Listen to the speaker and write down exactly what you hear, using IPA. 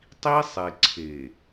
tˤ i˦ sˤ e˨ ǀʰ e˨

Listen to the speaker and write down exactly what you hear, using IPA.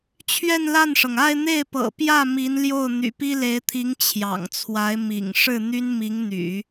t͡ɕʰ ɥ ɛ˥˧ n l a˥˩ n ʂ ɤ˩ ŋ a˥˧ ɪ̯ n̪ e˥˩ ɪ̯ p ɤ̰˨˩ p j ä˥˩ m i˧˥ n l j o˥˩ ʊ̯ n̪ y̰˨˩ p i˥ l e˧˥ ɪ̯ t̪ʰ i˧˥ ŋ t͡ɕʰ j ɑ̰˨˩ ŋ t͡sʰ w a˧˥ ɪ̯ m ḭ˨˩ ŋ ʂ ɻ̩˥˩ n̪ y˥ n m i˧˥ ŋ n̪ y̰˨˩˦

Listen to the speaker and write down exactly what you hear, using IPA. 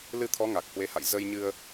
l ɨ˧ t̪ʰ ɔ˨˦ ŋ a˨˩ k̚ h w e˨˦ h a̰˧˨ j z ə˧ j ɲ ɨ˧ ə̯

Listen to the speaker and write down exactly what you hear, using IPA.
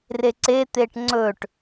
r e ǀ e t̪ e ʈ ŋ͡ǀ ɵ ʈ

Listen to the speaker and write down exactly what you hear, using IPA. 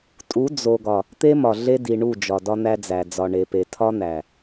tʼ u˨˦ d͡z o˨ ɡ ɒ˨ | t̪ e˦ m ɒ˨ ɮ e˦ d i˨ ɳ u˦˨ d͡ʒ ɒ˨ d ɒ˦ n̪ æ˦ d͡z æ˨ d͡z ɒ˨ ɳ e˨ p e˨ tʰ ɒ˦ n̪ æ˨

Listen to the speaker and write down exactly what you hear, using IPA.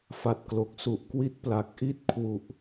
f a˨˩ t̚ k l o˨˩ k̚ s u˨˩ ʔ k w i˦˥ t̚ p l a˨˩ k̚ ʔ i˦˥ t̚ kʰ w u˨˩ ʔ

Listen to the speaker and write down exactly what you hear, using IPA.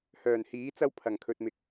h œː˨˩ n h iː˨˥ t͡s ɐ˥ w pʰ ɐ˨˩ ŋ kʰ ɵ˨ t̚ m ɪ˨ k̚

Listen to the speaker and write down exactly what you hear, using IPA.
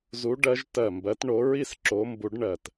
z u˨˦ ɖ ɜ˨˦ ʒ t ɜ˧˩ m b ɜ˨˦ t ɳ o˨˦ ɹ i˥˧ s ǁ o˨˦ m b u˨˦ ɖ ɳ ɜ˧˩ t

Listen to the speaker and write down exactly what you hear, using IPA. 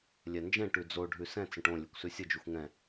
lʲ ɛ n d͡ʒ ɛ̃ ʈ ʉ d͡z o ɖʱ ʉ s ɛ̃ t͡s ə̃ ʈ õ lʲ e kʷ s ʉ sʲ ə d͡ʒ y xʷ ŋ ɛ̃

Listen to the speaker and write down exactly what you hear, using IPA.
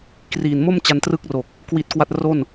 k r iː˨˩ n m o˥˩ m t͡ɕ a˧ n t r ɯ˥˩ k̚ r o˨˩ k̚ | k w i˦˥ t̚ k w a˥˩ t̚ r o˥˩ n

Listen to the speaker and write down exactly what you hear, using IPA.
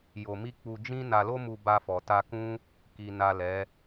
j o˧ m i˦ k͡p u˧ d͡ʒ ĩ˦ n a˧ l o˦ m u˧ b a˧ f ɔ˨ t a˧ k ũ˦ | k i˨ n a˨ l ɛ˨˦

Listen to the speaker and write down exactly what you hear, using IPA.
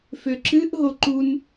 f ø ǁ ɨ ʔ ɦ o ǃ u n

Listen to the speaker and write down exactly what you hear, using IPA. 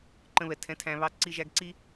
ǃ ə̃˧ β ɛ˨ tʰ ɛ̃˨˦ tʰ æ̃˨ β ɑ˧ ǀ i˧ ʒ æ˧ ɡ ǀ i˦

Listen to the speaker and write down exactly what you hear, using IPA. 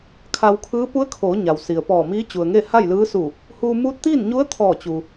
kʰ a˧ w kʰ ɯː˧˥ p u˧˥ ə̯ kʰ oː˩˧ ɲ a˩ w s i˩ ə̯ p ɔː˧˩ m iː˧˥ t͡ɕ u˩ ə̯ ŋ e˥˨ h a˥˨ j l ɯː˧˥ s u˧˩ | h uː˧ m uː˧˥ t̚ t̪ iː˥˨ n ɲ u˧˥ ə̯ t̪ʰ ɔː˧˩ t͡ɕ u˩

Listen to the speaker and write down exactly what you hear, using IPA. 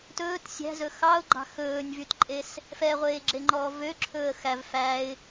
t ɵː t sʲ æ̤ z ɵ x ɑ ʊ̯ ɡ͡ǃ ɑ̤ x ɵː nʲ v y t ǃʼ e s | f ɛ ʁʷ eː ɡ͡ǁ e ŋ͡ǃ ɔː v ø ǁʰ ɵː ə̯ x æ v f æ ɪ̯

